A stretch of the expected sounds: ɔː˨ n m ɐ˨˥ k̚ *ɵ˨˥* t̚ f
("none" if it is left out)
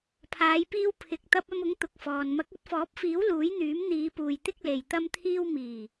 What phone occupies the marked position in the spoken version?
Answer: ɵ˨˥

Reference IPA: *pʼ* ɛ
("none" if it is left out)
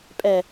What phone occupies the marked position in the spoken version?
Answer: pʼ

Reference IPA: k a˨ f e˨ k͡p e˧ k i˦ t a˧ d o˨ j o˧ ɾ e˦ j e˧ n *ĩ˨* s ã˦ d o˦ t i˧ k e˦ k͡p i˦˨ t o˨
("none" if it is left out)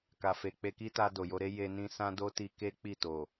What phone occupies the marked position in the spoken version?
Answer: ĩ˧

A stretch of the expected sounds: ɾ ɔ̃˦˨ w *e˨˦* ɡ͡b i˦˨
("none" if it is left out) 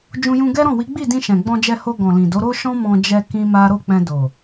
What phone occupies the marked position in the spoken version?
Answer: i˨˦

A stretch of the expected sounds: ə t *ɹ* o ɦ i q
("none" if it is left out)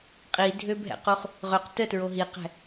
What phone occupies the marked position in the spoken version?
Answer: ɹ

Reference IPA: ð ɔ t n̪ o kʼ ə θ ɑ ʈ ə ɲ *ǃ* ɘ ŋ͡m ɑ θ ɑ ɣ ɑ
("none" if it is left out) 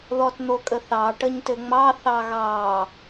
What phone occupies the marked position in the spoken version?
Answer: t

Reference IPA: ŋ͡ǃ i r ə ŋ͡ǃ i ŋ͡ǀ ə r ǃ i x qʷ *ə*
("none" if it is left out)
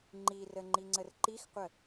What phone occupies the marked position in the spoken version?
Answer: ə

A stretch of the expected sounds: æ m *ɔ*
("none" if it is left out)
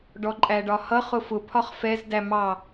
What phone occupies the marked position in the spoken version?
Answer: ɑ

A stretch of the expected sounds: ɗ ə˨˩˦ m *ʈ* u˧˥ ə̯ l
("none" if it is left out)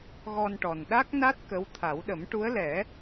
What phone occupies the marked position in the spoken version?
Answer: ʈ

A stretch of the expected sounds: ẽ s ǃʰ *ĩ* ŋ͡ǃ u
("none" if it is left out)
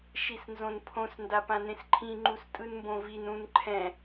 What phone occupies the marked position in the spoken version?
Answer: ĩ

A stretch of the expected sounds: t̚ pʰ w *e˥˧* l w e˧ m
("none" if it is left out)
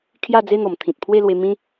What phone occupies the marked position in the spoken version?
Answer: e˥˧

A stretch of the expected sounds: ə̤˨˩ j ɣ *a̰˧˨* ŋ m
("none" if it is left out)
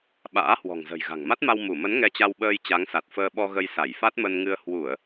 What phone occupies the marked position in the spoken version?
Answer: a̤˨˩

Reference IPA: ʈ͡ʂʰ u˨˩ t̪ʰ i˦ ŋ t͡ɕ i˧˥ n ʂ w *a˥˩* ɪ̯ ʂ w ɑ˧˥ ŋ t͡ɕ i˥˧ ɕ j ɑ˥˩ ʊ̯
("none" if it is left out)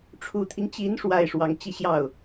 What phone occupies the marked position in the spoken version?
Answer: a˨˩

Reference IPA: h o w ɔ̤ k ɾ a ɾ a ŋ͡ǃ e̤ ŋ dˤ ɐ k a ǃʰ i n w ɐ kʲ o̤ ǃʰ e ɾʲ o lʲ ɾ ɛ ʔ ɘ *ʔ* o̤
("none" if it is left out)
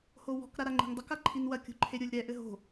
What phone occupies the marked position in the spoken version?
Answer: ɦ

